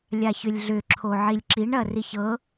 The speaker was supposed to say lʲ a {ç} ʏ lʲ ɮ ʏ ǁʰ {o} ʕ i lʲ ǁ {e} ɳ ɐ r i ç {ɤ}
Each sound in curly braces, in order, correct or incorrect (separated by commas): correct, correct, incorrect, correct